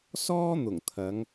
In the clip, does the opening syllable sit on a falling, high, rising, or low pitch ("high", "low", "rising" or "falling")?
high